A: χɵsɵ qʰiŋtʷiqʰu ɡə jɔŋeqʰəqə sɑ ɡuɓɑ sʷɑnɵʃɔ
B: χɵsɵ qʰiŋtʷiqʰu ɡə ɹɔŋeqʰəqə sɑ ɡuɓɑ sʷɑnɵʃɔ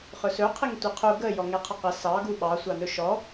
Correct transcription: A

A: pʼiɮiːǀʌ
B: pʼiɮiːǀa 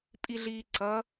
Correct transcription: A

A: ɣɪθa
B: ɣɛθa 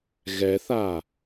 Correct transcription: B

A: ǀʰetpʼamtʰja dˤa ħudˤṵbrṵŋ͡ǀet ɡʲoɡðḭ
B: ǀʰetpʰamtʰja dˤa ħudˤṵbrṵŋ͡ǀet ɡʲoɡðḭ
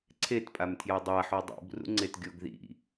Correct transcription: A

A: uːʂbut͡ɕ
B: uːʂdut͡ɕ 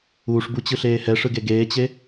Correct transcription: A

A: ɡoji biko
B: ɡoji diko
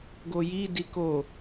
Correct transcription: B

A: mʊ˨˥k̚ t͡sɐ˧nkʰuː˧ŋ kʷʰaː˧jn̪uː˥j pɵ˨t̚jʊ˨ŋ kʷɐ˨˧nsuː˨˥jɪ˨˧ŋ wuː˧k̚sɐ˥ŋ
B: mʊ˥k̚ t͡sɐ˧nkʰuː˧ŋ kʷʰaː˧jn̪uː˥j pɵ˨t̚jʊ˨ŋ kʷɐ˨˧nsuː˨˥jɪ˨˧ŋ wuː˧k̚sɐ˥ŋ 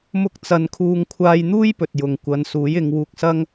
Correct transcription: B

